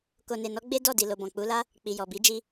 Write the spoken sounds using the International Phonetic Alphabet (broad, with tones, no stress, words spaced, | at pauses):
ko˨ne˨nɔ˨˦ ɡ͡be˦ dɔ˦˨di˨lo˨ bɔ̃˨k͡pu˨˦la˦ | k͡pi˨jɔ˨bi˨˦ d͡ʒi˧